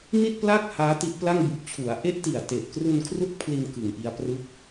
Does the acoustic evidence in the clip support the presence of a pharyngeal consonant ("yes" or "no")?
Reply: no